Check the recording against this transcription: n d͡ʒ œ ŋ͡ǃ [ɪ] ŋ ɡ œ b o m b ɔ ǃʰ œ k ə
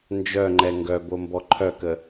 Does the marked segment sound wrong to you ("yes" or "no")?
yes